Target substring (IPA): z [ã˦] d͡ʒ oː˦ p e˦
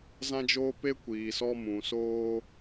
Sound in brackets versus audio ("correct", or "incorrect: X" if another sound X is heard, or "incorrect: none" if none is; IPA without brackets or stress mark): correct